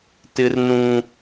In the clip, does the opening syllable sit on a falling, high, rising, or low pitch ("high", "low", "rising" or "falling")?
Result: high